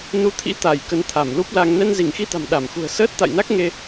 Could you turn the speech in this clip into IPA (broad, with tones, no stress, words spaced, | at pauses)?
nu˧ t̪ʰḭ˧˥ t̪a˧˩j kə˨˦nt̪ʰa˧˩mlu˦˥p̚la˧ŋ nɛ˧nzi˧˩ŋxi˧t̪a̤˨˩m ɗa˧˩m xṳ˨˩ə̯səː˦˥t̚t̪a̰˧˨jna˦˥k̚ ŋe˧